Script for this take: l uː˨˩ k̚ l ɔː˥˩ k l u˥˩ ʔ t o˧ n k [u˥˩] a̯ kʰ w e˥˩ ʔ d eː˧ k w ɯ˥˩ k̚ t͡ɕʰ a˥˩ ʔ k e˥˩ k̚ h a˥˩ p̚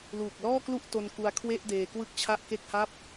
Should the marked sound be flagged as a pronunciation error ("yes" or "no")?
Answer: yes